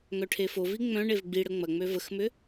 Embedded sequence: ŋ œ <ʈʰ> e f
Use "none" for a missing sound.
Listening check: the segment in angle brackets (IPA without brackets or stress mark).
ʈʰ